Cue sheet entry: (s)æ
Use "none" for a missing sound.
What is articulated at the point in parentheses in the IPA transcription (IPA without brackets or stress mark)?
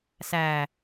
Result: s